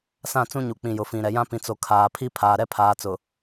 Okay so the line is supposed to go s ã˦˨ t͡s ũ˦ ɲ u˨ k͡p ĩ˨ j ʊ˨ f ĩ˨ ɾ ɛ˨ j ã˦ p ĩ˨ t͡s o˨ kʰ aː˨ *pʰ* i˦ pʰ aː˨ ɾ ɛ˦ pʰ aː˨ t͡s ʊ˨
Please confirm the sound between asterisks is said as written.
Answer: yes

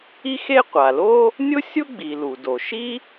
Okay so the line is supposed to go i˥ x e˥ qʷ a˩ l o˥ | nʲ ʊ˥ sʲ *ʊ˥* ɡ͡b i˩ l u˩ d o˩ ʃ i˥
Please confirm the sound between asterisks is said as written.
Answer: yes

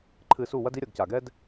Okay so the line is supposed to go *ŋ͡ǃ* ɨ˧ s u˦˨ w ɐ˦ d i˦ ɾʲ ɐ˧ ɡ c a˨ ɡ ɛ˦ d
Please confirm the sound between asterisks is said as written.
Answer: no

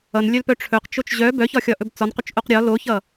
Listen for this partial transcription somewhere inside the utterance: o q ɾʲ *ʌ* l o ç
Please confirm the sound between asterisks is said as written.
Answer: no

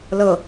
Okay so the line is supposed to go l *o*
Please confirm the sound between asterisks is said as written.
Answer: no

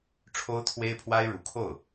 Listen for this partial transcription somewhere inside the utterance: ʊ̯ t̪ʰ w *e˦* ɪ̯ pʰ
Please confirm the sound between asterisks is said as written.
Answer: no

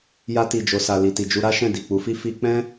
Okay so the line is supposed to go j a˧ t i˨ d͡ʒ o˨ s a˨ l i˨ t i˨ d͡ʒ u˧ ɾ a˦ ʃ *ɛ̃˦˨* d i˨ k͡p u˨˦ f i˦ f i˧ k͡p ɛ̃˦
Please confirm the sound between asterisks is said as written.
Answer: yes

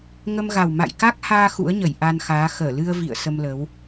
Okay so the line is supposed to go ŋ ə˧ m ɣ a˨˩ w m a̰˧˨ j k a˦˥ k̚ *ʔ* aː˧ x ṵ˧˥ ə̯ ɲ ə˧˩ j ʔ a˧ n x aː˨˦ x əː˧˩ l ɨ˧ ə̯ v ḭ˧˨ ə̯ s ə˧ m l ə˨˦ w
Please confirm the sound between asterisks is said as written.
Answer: no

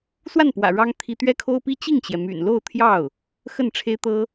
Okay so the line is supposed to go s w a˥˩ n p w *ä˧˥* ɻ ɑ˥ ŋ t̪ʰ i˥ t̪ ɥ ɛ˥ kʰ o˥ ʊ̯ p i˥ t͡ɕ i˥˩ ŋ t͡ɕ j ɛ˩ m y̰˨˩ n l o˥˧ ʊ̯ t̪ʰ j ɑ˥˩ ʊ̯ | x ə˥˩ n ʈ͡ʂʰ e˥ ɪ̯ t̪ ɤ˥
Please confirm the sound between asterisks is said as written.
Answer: no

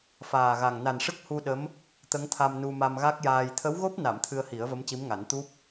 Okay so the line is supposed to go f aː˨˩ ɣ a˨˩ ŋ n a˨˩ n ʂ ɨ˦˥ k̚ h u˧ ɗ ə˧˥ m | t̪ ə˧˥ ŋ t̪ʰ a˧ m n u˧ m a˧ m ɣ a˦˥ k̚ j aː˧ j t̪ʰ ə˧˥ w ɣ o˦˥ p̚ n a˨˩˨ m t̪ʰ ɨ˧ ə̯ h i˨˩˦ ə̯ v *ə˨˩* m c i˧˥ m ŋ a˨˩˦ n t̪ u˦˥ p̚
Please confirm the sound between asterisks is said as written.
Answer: no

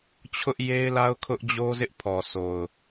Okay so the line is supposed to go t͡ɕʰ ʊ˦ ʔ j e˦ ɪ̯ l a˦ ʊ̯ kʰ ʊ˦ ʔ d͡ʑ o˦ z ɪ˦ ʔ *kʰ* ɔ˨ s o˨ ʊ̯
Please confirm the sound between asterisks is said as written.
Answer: no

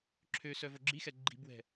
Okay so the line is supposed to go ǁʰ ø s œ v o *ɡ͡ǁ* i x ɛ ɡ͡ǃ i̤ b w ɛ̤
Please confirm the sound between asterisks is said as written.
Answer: yes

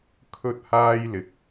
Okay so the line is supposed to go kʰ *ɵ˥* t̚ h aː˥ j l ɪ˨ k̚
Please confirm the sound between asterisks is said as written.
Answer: yes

